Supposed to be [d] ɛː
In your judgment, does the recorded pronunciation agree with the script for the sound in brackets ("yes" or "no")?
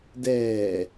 yes